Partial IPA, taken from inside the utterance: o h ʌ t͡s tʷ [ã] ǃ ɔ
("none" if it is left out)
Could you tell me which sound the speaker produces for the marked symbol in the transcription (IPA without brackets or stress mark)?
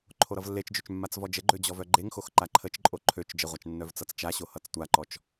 a